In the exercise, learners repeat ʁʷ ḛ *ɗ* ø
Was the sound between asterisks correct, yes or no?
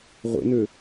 no